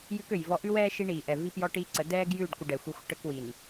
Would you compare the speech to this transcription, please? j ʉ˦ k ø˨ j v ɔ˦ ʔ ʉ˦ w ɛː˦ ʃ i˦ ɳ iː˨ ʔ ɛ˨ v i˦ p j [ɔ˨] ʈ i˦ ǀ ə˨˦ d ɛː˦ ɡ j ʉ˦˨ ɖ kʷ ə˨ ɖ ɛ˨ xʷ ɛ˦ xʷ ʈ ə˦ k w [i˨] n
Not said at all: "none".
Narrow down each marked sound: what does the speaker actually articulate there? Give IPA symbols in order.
ɔ˦, i˨

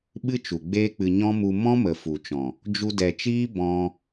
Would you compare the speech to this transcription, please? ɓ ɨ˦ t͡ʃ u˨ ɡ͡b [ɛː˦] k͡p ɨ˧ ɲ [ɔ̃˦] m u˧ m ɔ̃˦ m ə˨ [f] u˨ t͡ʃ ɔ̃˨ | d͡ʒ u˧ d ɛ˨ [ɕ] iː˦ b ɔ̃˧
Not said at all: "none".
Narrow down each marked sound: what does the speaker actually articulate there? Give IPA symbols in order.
eː˦, ɔ̃˦, f, t͡ʃ

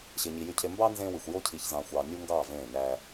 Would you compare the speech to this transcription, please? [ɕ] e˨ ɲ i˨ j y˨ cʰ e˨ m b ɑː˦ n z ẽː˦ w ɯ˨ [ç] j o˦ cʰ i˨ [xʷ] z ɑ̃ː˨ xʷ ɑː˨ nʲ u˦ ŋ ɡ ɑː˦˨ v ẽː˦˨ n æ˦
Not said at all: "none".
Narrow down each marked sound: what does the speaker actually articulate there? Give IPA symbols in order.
ɕ, xʷ, ç

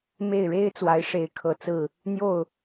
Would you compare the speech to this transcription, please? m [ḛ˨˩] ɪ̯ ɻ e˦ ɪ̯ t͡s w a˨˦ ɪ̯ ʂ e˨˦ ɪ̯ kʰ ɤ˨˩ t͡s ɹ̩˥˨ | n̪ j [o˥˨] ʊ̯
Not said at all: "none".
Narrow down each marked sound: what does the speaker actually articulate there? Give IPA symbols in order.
e˥˨, o˥˨

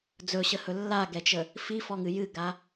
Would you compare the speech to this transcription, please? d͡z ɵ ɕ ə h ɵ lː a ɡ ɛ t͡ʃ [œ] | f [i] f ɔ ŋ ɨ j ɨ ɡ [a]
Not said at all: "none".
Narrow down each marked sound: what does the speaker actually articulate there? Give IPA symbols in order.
ə, i, a

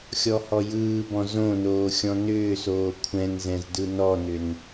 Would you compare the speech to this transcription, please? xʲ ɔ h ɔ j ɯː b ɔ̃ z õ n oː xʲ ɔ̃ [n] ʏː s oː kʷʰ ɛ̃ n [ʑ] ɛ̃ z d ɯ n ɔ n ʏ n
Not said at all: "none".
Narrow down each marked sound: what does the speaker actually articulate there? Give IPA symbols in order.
n, z

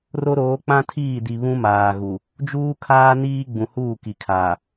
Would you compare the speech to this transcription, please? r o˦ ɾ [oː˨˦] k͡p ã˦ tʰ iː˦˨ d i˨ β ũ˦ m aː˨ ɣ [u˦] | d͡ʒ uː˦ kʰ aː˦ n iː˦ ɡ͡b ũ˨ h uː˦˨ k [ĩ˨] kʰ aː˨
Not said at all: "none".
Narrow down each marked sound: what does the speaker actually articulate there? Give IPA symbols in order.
oː˨˦, u˨, i˨

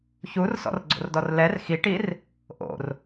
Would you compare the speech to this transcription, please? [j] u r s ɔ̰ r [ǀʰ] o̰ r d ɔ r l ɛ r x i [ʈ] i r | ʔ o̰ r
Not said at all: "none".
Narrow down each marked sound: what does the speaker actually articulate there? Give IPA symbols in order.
ç, ɡ͡ǀ, ʈ

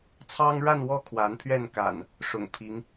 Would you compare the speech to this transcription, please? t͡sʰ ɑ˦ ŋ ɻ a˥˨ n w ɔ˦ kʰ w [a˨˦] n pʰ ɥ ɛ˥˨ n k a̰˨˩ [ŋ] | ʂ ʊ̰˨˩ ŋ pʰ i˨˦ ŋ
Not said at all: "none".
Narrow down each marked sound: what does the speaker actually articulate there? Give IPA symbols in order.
a˨˦, n

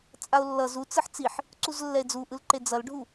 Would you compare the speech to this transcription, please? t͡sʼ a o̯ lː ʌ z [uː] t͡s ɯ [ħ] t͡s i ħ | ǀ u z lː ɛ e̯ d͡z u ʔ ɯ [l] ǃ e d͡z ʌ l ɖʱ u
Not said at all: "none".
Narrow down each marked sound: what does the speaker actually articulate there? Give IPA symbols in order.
u, ħ, l

